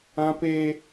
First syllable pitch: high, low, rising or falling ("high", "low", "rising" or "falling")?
high